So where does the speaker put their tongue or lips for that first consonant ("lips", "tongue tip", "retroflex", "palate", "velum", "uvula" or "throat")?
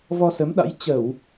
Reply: lips